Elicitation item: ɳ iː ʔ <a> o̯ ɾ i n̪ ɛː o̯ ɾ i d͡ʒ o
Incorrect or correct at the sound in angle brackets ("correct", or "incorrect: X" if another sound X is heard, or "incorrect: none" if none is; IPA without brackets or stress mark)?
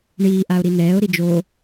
correct